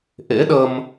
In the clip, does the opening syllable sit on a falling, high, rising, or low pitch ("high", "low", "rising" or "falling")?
rising